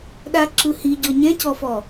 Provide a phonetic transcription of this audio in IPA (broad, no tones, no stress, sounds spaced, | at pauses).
ɗ a ǁ ɯ h i ɟ ɔ ɲ ɛ̃ c ɔ f ɔ